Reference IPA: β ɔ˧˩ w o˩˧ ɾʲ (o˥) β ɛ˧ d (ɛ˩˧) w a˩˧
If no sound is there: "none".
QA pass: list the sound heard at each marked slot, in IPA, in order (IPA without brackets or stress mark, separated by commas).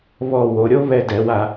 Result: o˥, ɛ˩˧